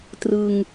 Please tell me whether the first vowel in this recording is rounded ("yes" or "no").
no